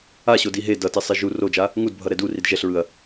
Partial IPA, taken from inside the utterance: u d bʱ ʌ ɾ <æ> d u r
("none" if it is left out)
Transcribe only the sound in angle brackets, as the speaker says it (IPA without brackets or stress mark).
ɛ